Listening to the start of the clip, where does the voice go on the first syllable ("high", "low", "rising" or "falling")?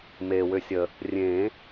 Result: low